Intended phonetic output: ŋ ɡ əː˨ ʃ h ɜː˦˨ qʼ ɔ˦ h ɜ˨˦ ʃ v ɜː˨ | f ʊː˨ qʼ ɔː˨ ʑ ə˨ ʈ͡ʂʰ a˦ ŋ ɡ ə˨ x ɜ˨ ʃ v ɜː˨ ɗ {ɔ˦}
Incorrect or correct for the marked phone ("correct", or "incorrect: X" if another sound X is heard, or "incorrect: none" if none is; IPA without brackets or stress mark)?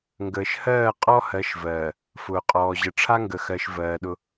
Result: incorrect: ʊ˦